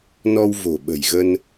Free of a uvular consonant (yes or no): yes